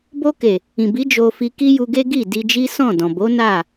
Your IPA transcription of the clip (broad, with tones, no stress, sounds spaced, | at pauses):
b o˧ k e˨ | ĩ˨ b i˨˦ d͡ʒ o˧ f i˧ k i˦ j u˧ ɡ e˦ ɡ i˦˨ d i˧ d͡ʒ i˦ s ɔ̃˦˨ d ɔ̃˨ b o˨˦ n a˦˨